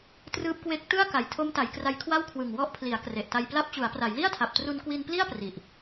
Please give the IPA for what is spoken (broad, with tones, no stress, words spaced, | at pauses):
trɯː˦˥p̚kwe˦˥k̚ tɯ˥˩a̯ ka˨˩jtʰo˦˥mta˩˦j kra˦˥jkʰwa˥˩w kʰwɯ˨˩ŋwɔ˦˥ʔpʰli˩˦a̯ kre˨˩ʔta˧jpla˥˩p̚ t͡ɕu˩˦a̯pra˩˦jli˥˩a̯tʰa˨˩p̚ tru˧nkwi˧npli˥˩a̯ pri˨˩ʔ